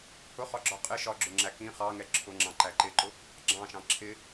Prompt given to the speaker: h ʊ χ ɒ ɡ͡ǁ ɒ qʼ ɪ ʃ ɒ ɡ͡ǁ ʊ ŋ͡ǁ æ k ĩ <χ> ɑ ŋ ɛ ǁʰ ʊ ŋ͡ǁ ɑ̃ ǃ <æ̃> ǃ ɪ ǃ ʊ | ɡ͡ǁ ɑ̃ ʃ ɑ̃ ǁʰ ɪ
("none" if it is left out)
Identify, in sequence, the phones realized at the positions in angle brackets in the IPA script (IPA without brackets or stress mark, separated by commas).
χ, æ